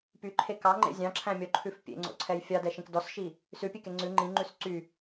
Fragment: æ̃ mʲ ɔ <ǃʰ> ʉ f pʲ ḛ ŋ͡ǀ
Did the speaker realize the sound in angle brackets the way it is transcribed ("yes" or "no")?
yes